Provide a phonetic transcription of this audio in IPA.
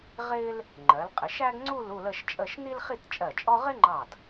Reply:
ʁɪː˥l | ŋ͡ǃɜ˩˧lqʼɪ˩˧ʃæ˥ɡŋ͡ǀu˥˧l u˥˧lə˥˧ʃt͡ʃʼə˥˧ʃ ni˥lχi˥˧tt͡ʃʼɜ˧˩t͡ʃʼɔ˥ ʁɪ˥ŋ͡ǃɑ˧˩d

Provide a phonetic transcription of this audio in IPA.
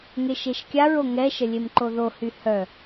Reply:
ŋeʃeʃkʲaɹo ŋɛʃə lʲemǃoðohy hœ

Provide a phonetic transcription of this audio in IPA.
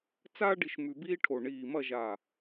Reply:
t͡saː˥ ɖi˧ʃ mʉ˧biː˥ʈʰo˧˩ ɳiː˧˩mɐ˥˧ʒaː˧˩

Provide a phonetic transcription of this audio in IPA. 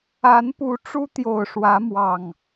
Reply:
a˨˦npu˨˦ ʈ͡ʂu˦t̪jo˨˩ʊ̯ʂwä˨˦mwɑ˨˩ŋ

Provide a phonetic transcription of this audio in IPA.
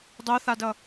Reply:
dˤoθadʌ

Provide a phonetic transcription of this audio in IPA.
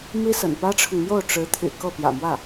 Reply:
mi˥sə̰˨˩n pä˥ʈ͡ʂʰʊ˨ŋmjo˥˩ʊ̯ ʈ͡ʂɻ̩˧˥t̪ʰy̰˨˩ kɤ˥˩pjä̰˨˩mwä˥˩

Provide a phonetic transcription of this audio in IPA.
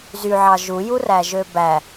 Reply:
zyʕɑ ʒujuræ ʒøbæ

